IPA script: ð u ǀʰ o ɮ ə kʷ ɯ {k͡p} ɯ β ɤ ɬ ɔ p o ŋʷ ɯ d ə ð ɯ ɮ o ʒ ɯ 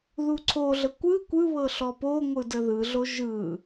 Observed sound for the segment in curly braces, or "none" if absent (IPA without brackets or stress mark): kʷ